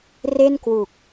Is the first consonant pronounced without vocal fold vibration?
no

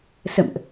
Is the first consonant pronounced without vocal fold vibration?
yes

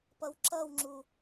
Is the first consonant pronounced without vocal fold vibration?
yes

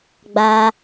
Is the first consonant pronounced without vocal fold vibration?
no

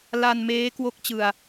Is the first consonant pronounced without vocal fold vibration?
no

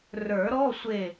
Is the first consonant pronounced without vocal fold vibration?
no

